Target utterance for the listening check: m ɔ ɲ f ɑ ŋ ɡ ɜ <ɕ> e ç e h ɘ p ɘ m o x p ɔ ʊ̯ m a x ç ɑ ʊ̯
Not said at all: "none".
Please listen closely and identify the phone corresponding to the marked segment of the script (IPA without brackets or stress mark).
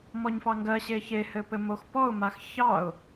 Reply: ɕ